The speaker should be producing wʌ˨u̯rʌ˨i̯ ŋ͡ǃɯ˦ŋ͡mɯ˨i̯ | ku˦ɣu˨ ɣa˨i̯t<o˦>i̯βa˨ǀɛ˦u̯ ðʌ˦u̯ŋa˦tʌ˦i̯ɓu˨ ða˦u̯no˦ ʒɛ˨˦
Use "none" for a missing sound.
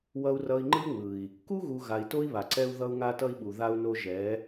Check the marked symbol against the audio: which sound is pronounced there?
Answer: o˦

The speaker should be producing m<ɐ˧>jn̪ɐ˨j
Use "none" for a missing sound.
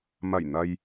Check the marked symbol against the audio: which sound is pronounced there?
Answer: ɐ˨˩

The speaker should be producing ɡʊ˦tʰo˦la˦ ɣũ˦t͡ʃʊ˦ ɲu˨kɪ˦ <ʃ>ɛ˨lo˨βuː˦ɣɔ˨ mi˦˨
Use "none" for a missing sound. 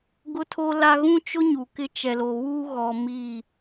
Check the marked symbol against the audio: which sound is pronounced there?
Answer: t͡ʃ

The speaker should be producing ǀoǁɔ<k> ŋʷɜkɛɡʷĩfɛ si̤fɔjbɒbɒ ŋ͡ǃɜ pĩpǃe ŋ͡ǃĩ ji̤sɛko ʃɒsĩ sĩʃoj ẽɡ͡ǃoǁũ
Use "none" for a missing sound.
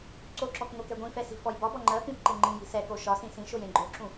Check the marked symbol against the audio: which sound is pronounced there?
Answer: k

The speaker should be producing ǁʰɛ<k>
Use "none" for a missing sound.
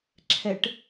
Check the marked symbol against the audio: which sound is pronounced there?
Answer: ʈ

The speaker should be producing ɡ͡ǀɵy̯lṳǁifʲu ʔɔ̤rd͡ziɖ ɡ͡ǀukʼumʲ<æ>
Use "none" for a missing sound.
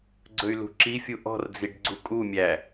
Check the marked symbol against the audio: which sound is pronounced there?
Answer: æ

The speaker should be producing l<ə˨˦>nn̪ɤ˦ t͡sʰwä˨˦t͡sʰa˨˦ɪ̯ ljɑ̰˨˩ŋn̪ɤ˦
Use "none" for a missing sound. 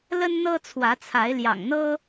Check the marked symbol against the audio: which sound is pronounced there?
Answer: ə˦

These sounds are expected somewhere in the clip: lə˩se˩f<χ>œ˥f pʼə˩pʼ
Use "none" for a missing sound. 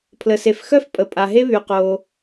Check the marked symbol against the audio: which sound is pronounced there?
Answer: x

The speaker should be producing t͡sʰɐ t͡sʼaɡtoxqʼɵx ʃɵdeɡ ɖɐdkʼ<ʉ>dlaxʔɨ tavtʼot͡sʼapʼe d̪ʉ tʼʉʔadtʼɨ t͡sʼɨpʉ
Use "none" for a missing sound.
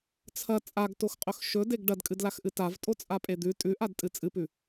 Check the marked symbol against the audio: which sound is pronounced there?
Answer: ɨ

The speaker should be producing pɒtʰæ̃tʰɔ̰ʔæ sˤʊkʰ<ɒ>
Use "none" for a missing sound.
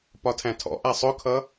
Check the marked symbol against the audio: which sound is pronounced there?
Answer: ʌ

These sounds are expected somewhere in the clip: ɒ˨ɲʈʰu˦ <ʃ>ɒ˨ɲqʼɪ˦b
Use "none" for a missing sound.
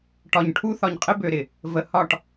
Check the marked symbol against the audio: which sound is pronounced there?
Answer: θ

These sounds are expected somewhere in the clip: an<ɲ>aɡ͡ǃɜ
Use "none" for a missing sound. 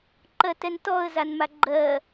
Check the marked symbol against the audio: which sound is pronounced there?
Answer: m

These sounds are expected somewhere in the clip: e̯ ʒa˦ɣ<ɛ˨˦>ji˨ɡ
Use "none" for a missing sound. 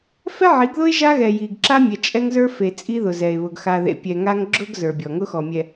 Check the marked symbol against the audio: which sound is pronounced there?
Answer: ɛ˨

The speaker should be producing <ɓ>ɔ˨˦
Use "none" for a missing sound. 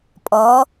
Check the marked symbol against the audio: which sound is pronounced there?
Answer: pʼ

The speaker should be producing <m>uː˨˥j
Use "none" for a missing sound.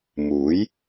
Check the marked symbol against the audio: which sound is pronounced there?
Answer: m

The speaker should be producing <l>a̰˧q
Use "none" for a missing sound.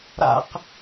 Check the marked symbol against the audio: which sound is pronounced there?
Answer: ɾ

